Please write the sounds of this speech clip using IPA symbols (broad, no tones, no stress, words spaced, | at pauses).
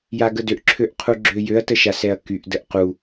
jaɡədøʔ ǁʰøʔqʰuɡ͡ǁøjøɐ̯ təʃasɛɐ̯kyʔ dəʔqu